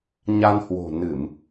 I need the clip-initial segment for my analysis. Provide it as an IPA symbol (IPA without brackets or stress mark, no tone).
ɲ